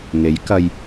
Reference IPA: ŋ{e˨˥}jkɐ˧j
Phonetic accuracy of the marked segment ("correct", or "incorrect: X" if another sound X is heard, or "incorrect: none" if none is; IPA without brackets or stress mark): correct